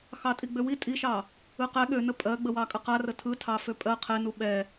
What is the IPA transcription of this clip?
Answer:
xɑtʼiɡ͡bøwi tʼiʃɑ | ɯqɛ ɠønə pʼɜɡ͡bəwɑ kʼəqarə tʰɯ tʰɑføpʼɜ qʰɛnu ɓɛ

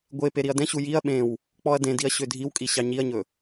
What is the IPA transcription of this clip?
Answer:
ɡʷe peɾiɐ̯dɛ̃ɕu jiɐ̯ ɓẽw | k͡pɔɐ̯dẽdiɐ̯ ɕødʱiwkʼi ɕɑɲiɐ̯ɲɵ

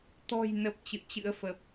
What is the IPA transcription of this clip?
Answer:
t̪ɔ̤˨˩jnə˨˩p̚ t͡ɕɨ̰˧˨ə̯t͡ɕɨ̰˧˥ə̯fə˨˩p̚

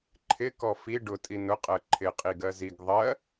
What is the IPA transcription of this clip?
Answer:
ǃʰɪkɔ fi ɖʊtʼi nʊqʼɜ ǃʰɪqʼiɡɜ ziɡ ðˤɜ

